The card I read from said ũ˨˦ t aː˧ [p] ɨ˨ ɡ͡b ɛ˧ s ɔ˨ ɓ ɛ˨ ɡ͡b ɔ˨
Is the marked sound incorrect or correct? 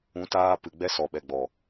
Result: correct